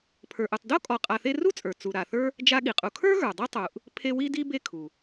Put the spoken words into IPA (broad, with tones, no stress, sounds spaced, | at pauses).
pʰ ə˞˨ ʔ u˨ tˤ d o˦ kʼ ɔ˨ qʼ a˨ θ e˦ r u˥ t͡sʼ ə˞˩ t͡s u˨ ɾ a˨ θ ə˞˥ | d͡ʒ a˦ ɠ i˩ qʼ u˨ kʰ ə˞˥ ɣ ə˞˩ dˤ i˥ tˤ u˨ ʔ | pʰ e˦ w i˥ d i˥ b e˦ kʰ u˩